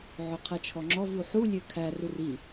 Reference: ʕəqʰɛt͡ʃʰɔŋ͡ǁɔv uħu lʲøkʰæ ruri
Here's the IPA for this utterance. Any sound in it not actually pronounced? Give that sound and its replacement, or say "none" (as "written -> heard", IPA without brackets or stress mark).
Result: ə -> ø